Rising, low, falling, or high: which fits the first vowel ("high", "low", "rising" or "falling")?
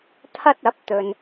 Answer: high